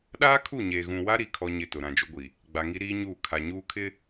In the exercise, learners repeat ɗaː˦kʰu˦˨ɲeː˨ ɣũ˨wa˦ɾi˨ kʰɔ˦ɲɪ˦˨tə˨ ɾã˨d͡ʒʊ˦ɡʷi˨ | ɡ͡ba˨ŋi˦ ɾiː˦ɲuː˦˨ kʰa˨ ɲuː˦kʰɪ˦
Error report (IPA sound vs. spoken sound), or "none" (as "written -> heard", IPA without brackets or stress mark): ə˨ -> ʊ˨